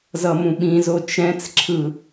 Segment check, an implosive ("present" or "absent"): present